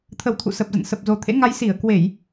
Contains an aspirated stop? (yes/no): yes